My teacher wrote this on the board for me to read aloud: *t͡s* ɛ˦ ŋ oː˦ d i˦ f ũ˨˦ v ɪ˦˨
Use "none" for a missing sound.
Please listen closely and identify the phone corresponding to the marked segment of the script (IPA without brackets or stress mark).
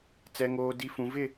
t͡s